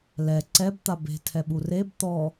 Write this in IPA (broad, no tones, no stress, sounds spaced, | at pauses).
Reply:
l ɛ ǀ ɛ b t̪ a b e̤ tʰ ɛ ɓ u r e b t̪ ɔ